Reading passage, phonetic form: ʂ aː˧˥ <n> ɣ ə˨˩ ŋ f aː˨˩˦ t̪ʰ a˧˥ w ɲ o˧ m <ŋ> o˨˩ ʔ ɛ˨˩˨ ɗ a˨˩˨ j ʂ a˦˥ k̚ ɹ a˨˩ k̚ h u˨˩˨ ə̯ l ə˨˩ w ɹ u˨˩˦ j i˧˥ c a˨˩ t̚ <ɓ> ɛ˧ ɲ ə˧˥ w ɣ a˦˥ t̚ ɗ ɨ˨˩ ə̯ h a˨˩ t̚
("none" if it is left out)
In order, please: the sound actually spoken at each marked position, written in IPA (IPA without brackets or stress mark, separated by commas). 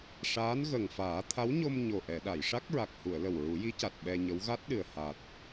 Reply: n, ɲ, ɓ